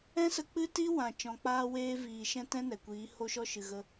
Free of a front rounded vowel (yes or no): yes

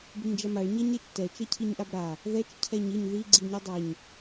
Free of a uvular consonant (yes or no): yes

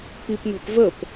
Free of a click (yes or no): yes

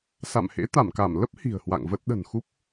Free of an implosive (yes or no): no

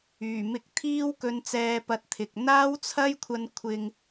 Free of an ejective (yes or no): yes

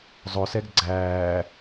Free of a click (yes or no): no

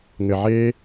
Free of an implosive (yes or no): yes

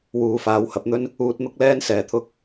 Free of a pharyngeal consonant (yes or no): yes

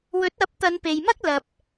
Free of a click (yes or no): yes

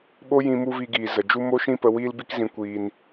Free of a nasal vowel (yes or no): no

